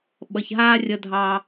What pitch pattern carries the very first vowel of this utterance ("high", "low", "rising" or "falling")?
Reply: low